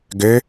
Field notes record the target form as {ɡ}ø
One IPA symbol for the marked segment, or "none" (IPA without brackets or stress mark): ɡ